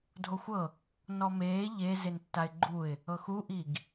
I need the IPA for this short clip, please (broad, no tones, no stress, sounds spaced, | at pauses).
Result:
dʱ o xʷ ɤ | n ɔ m eː ʎ e z e n tː a ɪ̯ ɡ͡ǃ u ɪ̯ | ɤ x u ʔ i ɡ